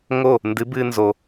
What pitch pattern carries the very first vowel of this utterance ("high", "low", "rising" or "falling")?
falling